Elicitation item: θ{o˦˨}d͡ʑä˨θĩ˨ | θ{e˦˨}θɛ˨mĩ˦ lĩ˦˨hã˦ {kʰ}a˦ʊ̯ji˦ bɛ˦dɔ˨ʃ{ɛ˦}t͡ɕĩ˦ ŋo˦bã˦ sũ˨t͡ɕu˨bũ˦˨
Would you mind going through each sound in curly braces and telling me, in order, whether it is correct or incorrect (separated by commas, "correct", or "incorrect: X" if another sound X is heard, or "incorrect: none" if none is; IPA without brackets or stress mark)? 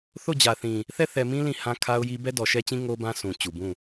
correct, incorrect: ɛ˦˨, correct, correct